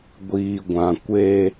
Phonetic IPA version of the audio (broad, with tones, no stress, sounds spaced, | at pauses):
ɡʷ iː˨ ɡʷ ã˨ kʷ e˦